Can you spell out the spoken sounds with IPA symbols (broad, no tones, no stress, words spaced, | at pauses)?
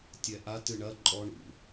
tʲɛʔa tɨɳɐ ǃʼɔ ɳṵ